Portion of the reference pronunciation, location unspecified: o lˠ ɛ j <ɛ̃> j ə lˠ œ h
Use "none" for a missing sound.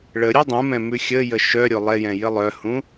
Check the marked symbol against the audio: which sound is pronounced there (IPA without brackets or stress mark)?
ɛ̃